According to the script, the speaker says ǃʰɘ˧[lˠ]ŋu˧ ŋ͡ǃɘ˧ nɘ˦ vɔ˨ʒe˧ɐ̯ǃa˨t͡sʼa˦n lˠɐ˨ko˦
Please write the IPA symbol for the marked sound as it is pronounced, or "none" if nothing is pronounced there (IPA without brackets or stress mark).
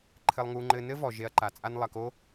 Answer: lˠ